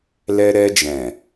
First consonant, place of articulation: alveolar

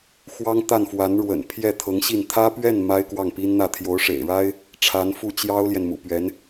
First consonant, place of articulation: velar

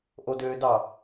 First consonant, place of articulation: glottal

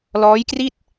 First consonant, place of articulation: alveolar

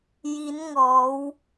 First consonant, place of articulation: palatal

